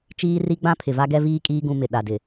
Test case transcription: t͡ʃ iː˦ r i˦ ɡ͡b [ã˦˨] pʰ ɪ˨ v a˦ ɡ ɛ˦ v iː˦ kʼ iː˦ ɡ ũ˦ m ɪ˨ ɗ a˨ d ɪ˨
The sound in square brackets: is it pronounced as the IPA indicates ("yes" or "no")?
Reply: no